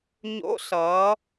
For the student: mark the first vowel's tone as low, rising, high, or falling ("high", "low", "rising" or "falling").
rising